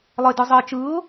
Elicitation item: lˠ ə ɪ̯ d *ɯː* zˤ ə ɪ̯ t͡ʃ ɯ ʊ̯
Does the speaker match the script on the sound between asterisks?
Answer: no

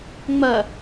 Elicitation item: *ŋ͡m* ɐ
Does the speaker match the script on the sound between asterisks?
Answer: yes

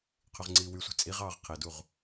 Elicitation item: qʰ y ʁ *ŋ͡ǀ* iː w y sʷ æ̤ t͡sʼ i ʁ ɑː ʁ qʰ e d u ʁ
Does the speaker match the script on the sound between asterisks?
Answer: yes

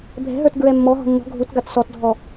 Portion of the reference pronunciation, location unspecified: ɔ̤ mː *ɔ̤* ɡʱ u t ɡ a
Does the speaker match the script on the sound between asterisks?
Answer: yes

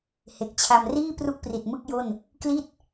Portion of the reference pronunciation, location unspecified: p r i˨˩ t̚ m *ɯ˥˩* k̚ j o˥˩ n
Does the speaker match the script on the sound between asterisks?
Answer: yes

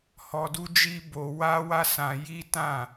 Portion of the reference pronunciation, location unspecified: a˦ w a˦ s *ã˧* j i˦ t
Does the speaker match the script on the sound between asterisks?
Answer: yes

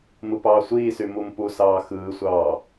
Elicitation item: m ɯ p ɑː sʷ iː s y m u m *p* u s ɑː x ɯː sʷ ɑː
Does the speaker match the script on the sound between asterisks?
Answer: yes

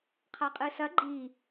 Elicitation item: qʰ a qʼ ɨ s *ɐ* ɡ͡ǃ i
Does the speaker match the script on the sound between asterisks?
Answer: yes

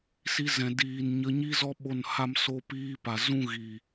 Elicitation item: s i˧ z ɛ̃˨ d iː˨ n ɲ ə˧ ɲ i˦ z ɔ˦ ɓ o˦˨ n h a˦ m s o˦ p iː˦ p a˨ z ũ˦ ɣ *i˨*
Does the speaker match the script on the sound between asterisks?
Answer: yes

